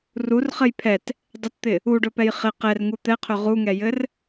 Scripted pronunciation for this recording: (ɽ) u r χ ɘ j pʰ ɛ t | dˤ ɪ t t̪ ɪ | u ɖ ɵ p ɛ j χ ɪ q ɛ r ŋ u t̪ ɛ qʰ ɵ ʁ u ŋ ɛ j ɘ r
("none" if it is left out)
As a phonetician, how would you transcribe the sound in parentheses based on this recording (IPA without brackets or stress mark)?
r